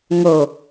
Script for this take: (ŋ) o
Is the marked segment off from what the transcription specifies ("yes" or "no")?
no